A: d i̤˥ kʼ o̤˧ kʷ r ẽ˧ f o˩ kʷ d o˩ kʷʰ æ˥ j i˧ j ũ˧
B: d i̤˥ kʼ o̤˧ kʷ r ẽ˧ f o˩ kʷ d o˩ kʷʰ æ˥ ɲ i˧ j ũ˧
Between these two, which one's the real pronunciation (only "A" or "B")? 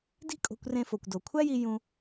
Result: A